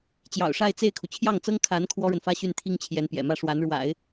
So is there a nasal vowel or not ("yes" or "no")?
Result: no